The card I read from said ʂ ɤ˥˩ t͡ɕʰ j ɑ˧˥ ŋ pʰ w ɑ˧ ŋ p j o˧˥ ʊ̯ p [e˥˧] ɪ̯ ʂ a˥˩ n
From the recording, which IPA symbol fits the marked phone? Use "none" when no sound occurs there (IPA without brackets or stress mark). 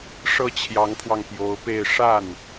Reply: e˥˧